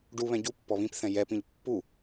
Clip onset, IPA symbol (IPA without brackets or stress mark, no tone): ɖ